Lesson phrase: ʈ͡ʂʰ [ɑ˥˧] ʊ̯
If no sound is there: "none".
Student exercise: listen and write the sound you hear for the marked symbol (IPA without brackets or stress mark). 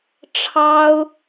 ɑ˥